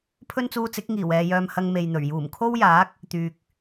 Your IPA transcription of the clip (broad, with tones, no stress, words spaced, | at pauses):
pʰɵ˥nt͡suː˧t͡sɪ˨˥k̚ ŋiː˨˩wɛː˨jœː˧mhɐ˧ŋ me˨jn̪ɵ˨˩ɥ juː˨˩mkʰo˥wjaː˨˥k̚ | t̪yː˨k̚